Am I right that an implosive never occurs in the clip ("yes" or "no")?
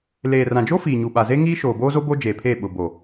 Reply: no